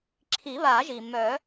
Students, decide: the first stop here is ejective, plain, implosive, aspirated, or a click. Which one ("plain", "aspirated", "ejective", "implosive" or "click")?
click